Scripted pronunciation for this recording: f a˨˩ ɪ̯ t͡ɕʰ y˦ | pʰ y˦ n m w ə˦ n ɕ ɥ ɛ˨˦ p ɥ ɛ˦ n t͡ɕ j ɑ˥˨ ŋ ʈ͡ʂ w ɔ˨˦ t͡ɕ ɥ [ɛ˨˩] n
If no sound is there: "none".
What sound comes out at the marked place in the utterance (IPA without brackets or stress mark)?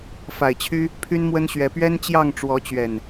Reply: ɛ˨˩